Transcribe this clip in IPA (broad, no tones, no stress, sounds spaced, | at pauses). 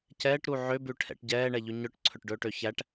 c ɛː ʈ ɾ u ʕ ø b ʉ ʈʰ ɛ̰ ʈ ɟ ɛː ɳ ɛ ʎ ʉ ɲ œ ʈ ǀʰ ɵ ʈ ɖ ɵː ʈ ø ç æ ʈ